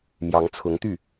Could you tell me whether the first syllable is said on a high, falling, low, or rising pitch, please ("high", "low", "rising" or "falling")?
rising